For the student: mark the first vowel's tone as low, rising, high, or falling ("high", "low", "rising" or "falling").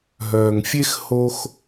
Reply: low